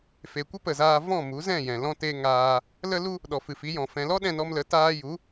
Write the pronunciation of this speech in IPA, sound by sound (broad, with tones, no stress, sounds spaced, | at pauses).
f e˨ kʷ ə˦ p ə˨ z aː˧ v ɔ̃˦˨ m u˨˦ z ɛ̃˦˨ j ɛ̃˨ l ɔ̃˦ t e˦ ŋ aː˧ | l ə˦ l u˦ | ɗ ɔ˨ f ɨ˨ f i˨˦ j ɔ̃˨ f ɛ̃˨ l ɔ˦ ɗ ɛ̃˧ n ɔ˧ m l ə˨˦ t aː˧ j u˨˦